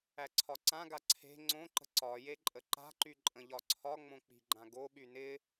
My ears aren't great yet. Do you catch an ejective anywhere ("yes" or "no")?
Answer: yes